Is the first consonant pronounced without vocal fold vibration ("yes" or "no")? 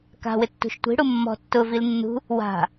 yes